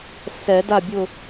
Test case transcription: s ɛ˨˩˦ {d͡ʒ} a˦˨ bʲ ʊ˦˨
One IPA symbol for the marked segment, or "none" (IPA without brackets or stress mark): d